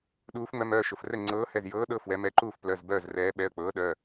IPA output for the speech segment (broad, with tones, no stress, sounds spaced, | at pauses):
ɗ uː˨˦ f ŋ͡m œ˨˦ m œː˩˧˩ ʃ ʊ˩˧˩ f r ɛ˥˨ ŋ͡ǀ ɤː˨˦ h ɛ˩˧˩ z j ɤː˨˦ ɗ ɤ˩˧˩ f w ɛ˨˦ m ɛ˨˦ ǃ uː˥˨ f p l œ˩˧˩ z b œː˥˨ z r ɛː˨˦ ɓ ɛ˩˧˩ ə̯ k͡p ɤː˨˦ ɗ œ˩˧˩